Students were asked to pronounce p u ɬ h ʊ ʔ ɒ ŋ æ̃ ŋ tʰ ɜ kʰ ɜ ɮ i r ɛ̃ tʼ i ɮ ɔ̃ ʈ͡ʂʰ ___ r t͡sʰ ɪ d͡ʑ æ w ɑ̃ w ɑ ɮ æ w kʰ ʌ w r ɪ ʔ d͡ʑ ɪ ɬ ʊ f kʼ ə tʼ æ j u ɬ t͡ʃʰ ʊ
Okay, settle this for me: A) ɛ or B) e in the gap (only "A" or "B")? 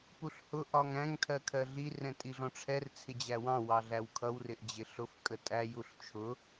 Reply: A